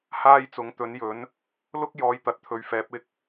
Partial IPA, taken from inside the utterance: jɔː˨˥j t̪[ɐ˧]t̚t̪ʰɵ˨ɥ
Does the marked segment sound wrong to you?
yes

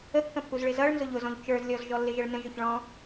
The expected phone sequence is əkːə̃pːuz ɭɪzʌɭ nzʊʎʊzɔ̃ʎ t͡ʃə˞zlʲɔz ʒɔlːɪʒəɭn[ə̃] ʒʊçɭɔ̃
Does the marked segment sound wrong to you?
no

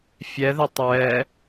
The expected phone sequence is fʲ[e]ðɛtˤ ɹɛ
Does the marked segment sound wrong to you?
yes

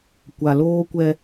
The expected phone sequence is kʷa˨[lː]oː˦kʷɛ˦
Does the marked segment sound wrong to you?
yes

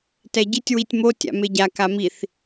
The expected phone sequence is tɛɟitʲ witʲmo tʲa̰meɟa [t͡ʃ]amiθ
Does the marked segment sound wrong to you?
yes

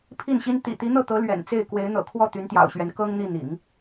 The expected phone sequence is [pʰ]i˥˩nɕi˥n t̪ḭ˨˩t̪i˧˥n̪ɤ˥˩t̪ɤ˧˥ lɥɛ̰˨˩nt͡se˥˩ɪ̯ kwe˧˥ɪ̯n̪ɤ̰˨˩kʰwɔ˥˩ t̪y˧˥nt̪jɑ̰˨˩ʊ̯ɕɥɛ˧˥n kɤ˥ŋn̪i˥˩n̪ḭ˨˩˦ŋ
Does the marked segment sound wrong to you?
no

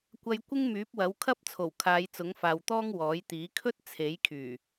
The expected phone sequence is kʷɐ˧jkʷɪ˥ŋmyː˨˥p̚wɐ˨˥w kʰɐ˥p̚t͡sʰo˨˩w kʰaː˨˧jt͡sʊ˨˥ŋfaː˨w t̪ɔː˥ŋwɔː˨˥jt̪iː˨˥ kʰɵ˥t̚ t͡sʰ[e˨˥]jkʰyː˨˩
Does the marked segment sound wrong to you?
no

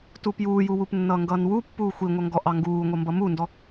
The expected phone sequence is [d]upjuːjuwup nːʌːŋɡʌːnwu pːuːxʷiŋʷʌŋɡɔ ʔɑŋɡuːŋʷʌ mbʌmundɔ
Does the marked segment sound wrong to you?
yes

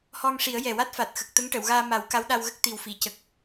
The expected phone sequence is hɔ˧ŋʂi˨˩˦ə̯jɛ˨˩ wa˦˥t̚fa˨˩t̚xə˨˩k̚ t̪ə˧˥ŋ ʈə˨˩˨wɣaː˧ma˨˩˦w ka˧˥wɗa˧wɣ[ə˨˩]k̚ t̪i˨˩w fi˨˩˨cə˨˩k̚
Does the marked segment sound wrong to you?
yes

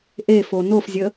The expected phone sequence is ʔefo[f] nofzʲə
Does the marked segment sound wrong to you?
yes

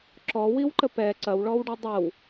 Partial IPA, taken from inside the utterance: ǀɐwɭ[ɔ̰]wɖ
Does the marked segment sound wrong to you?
yes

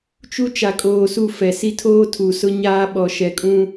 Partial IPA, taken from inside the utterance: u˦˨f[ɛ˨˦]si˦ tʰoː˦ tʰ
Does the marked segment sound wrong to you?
yes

